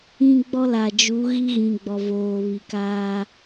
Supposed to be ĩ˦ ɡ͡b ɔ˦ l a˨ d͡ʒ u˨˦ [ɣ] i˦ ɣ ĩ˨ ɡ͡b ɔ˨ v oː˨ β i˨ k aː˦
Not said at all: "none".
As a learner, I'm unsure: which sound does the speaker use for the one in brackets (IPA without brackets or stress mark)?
ɣ